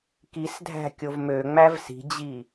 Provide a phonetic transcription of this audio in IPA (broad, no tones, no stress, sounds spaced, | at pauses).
k i s dʱ æ̤ kʲ o v m ø ŋ͡m æ v s i̤ d͡ʑ i